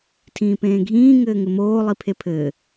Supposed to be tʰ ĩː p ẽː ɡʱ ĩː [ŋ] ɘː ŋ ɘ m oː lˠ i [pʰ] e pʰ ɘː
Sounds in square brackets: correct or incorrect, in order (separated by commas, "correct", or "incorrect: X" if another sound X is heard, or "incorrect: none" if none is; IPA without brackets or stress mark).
correct, correct